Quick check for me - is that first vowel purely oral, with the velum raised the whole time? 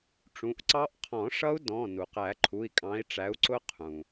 no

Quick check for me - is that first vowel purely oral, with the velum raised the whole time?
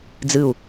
yes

